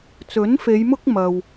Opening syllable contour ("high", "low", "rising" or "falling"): rising